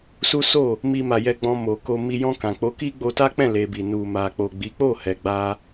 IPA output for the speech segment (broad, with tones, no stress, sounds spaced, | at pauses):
s u˦ s o˦˨ | m i˧ m a˨ j ɛ˧ ɡ͡b ɔ̃˧ m o˨ k o˧ m i˧ j ɔ̃˧ k ã˨ k͡p o˨˦ k i˦ ɡ͡b o˧ t a˦ k͡p ɛ̃˦˨ l e˧ b i˨ n u˨ m a˨ k͡p o˨ ɡ͡b i˨˦ k͡p o˦˨ h ɛ˨ ɡ͡b a˧